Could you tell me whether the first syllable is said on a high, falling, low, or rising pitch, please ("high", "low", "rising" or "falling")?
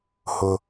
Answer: low